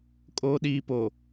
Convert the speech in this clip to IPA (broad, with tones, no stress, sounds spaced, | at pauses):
kʼ oː˨ ɗ iː˨ p o˨